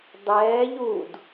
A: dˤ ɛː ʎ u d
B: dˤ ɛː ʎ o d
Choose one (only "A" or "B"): A